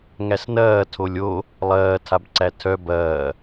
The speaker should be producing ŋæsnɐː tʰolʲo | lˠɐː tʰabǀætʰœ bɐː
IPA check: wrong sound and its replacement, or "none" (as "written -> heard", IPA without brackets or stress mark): none